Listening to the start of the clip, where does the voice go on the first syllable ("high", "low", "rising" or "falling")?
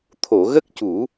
low